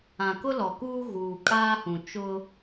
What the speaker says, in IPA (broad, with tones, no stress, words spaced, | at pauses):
ã˨kʊ˦lɔ˨kuː˦ ɣuː˨kʼaː˦hũ˨ t͡ʃʊ˦